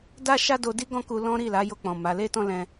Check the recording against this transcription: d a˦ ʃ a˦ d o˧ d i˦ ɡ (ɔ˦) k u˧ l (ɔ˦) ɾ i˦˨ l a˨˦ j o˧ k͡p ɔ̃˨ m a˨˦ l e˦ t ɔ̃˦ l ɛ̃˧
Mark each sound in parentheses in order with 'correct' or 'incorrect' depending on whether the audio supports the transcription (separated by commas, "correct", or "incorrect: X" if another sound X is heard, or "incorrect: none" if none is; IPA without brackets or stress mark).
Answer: incorrect: ɔ̃˦, incorrect: ɔ̃˦